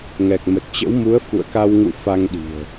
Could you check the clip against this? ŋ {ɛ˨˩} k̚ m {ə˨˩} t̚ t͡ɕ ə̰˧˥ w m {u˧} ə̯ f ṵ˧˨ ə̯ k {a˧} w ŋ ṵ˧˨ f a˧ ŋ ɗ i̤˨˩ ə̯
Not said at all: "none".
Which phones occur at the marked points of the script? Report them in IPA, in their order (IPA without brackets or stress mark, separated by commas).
ɛ˨˩, ə˨˩, u˨˦, a˧